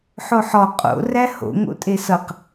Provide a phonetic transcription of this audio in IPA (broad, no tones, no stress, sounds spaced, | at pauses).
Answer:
ħ o ħ ɔ qʼ o̰ r æ h o̰ ŋ o̰ tʼ e s ʌ q